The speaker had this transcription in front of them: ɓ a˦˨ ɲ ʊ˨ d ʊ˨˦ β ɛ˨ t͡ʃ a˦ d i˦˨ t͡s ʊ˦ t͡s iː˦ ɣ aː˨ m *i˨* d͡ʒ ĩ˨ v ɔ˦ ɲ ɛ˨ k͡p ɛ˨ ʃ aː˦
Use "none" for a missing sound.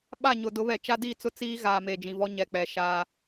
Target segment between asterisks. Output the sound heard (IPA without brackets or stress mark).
e˨